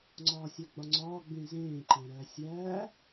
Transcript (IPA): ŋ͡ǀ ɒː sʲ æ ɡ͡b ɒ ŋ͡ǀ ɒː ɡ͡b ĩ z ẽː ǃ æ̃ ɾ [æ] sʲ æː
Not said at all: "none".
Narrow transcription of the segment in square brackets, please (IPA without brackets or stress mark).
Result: æ